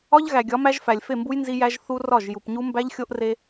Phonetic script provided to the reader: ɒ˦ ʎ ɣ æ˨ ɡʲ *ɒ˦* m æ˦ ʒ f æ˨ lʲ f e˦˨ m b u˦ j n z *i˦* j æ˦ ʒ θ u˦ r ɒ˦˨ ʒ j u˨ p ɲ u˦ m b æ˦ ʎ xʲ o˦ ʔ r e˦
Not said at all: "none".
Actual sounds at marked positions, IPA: ɒ˨˦, i˦

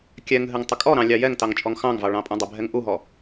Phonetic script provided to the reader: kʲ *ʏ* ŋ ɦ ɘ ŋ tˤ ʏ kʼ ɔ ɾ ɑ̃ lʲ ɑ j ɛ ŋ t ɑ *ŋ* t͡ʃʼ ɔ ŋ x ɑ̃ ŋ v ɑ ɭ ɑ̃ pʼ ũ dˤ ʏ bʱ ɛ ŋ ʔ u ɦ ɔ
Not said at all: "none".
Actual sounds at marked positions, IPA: ɛ, ŋ

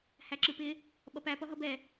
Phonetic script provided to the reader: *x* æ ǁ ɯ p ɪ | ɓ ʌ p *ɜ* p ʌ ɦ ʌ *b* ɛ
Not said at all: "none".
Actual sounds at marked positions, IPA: h, æ, b

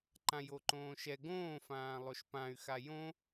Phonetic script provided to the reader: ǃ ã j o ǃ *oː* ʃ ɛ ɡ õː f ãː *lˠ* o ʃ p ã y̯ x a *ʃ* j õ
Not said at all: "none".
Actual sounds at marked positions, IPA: õː, lˠ, none

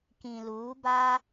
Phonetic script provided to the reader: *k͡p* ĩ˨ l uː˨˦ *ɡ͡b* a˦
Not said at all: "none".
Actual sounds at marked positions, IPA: k, b

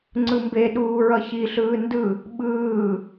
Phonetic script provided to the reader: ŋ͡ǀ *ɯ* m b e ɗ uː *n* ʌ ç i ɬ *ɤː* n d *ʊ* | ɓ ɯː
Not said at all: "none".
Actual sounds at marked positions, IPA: ɯ, ɹ, ɯː, ɯ

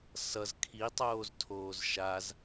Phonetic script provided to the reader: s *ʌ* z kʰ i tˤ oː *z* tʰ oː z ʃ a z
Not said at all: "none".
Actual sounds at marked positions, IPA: ʌ, z

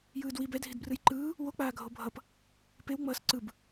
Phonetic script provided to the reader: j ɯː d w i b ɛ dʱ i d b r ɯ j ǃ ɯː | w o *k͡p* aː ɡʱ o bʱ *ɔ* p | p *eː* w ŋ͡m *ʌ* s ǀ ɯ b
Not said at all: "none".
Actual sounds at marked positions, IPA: k͡p, ʌ, e, ʌː

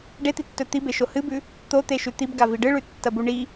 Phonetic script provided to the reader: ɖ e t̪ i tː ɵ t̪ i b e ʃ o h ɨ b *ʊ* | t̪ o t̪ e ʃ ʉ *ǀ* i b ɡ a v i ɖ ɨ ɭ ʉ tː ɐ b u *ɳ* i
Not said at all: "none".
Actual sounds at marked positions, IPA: ʉ, t̪, ɳ

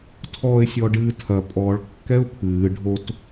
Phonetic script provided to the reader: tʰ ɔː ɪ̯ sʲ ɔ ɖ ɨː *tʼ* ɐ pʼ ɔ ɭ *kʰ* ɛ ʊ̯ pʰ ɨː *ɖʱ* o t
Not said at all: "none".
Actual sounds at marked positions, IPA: tʰ, kː, ɖʱ

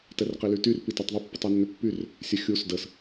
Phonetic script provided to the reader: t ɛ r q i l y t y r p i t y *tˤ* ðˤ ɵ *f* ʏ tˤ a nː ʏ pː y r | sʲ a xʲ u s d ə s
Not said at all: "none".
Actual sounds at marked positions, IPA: tˤ, pː

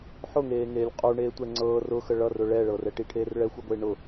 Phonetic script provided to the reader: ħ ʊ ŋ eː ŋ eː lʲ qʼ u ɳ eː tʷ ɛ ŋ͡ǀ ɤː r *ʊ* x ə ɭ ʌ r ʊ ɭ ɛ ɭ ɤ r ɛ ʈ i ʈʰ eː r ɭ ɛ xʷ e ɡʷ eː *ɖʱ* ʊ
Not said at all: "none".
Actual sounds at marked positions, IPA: ʊ, ɳ

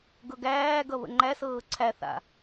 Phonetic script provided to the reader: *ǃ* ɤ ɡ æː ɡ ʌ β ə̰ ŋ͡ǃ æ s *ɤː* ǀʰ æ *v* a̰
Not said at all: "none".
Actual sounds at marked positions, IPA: ɡ, ɤː, θ

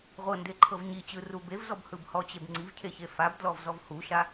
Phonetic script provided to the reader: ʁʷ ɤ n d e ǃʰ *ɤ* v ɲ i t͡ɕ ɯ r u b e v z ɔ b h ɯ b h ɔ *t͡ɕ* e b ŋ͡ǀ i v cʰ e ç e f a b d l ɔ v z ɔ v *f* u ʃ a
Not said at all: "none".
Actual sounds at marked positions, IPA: ɤ, t͡ɕ, h

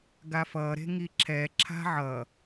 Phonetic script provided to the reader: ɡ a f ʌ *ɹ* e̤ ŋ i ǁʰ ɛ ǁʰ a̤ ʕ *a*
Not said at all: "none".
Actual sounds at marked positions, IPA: ɾ, ʌ

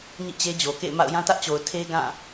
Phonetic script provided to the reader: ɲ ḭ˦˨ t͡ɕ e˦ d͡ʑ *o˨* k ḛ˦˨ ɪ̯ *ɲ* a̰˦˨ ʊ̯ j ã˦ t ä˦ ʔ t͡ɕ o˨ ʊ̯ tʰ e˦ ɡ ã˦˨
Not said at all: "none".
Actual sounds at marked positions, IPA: o˨, m

